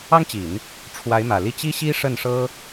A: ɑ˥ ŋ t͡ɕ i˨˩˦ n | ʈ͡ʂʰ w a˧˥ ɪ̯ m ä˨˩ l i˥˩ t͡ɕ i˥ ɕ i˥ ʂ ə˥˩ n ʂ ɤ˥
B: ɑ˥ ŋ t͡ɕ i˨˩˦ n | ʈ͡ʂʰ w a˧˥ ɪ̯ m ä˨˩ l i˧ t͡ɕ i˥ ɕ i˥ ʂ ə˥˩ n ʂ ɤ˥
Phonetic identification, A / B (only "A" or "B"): A